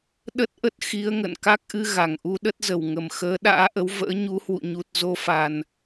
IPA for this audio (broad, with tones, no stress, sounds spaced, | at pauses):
ɗ ə˦˥ t̚ ʔ ə˦˥ t̚ x i˨˦ ə̯ ŋ ə̰˧˨ n k a˦˥ k̚ ʔ ɨ˧ ɣ a˨˩ ŋ ʔ u˧ ɗ ə˦˥ t̚ z ə˨˩ w ŋ ə˨˩ m x əː˨˦ ɗ a̰ː˧˥ ʔ ə˨˦ w v ə̰ː˧˥ ɲ u˨˦ h w ṵ˧˨ ɲ u˨˩ t̚ z o˧ f a˨˩ n